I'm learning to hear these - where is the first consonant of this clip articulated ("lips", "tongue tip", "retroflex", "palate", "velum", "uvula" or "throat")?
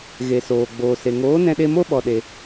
velum